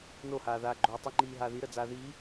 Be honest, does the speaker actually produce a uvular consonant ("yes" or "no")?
no